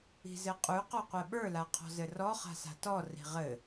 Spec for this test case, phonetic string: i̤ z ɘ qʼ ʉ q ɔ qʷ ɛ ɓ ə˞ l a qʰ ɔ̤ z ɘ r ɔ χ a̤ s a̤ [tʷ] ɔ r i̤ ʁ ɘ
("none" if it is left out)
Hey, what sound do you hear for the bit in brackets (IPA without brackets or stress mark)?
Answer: t